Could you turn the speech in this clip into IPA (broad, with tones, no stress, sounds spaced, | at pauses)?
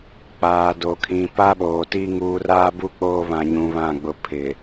k͡p aː˨ d o˨ kʰ ĩ˨ p a˦ ɓ oː˨ t i˦ ŋ uː˨ r aː˦ b u˦ k͡p oː˦ β ã˨ ɲ ũ˨ β ã˦˨ ɡ͡b ʊ˦˨ pʰ ɪ˨